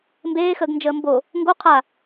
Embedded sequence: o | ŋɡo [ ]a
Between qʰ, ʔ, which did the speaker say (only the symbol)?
qʰ